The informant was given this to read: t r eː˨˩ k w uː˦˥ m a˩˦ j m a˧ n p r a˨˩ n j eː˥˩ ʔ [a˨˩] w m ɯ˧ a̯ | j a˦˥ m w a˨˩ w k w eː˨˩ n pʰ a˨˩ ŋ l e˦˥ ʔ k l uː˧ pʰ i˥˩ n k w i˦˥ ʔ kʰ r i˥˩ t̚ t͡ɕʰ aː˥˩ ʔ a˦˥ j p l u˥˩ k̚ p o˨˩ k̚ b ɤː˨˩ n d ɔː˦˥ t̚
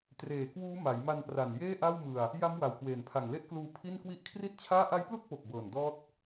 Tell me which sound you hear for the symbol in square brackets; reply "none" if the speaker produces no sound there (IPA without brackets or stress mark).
a˥˩